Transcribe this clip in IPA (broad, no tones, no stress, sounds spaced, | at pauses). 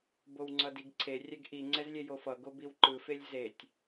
b o w ŋ͡ǀ ʌ d i ɡ ǀʰ e rʲ ɛ ɡ ʔ i ŋ͡ǀ ɛ z lʲ e j o f ʌ ɡ o b i w ǃ ɯ f e lʲ z e tʲ